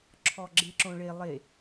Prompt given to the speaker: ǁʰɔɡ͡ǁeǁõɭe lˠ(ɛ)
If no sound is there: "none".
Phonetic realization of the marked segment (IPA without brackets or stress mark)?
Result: e